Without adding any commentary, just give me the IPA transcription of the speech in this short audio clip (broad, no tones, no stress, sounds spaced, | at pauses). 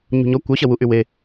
ɲ ṳ ɲ ɔ kʷ œ ɕ ɐ w u ʔ y w e